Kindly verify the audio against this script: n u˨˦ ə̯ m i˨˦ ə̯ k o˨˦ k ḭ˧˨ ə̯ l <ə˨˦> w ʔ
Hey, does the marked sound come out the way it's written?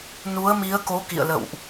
no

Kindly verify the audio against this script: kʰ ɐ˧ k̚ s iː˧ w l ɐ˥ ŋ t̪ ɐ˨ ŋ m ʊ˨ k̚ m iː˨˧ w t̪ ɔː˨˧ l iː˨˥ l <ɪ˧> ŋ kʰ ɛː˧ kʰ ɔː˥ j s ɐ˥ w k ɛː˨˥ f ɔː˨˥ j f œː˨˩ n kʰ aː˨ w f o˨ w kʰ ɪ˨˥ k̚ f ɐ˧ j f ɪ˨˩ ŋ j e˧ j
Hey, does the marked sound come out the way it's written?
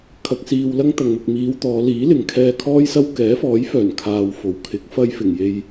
no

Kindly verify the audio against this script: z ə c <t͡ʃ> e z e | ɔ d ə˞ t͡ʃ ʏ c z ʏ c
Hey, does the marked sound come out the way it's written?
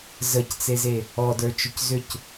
no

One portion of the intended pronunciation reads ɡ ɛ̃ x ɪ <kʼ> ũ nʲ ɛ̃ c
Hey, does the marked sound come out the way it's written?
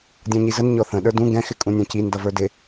yes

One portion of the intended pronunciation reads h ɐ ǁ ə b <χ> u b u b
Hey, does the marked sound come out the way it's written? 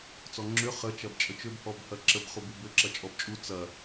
yes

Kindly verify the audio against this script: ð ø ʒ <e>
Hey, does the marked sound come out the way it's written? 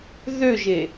yes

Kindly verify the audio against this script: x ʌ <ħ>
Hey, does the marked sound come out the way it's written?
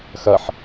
yes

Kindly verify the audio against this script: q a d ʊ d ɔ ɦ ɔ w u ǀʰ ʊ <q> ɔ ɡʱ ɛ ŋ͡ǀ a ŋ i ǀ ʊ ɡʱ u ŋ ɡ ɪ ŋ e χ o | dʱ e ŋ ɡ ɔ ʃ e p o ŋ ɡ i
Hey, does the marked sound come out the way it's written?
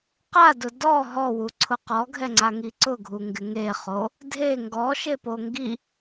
yes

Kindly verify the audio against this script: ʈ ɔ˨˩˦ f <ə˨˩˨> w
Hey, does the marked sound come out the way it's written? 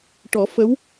no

